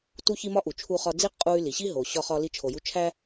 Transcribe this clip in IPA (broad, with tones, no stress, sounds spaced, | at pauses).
t u˥ ç i˥ m ɒ˥ ʔ u˩ t͡ʃʰ u˧ χ ɒ˧ d͡z i˥ qʼ u˧ y̯ l i˩ ɕ i˥ ɦ o˩ ɕ ɒ˧ χ ɒ˧ l i˧ t͡ʃʰ o˩ j u˧ t͡ʃʰ æ˥